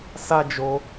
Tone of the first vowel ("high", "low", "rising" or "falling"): high